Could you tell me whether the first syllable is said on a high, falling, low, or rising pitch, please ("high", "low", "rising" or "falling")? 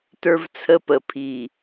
high